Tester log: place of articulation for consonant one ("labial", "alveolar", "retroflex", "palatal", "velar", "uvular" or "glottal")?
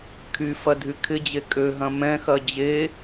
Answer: velar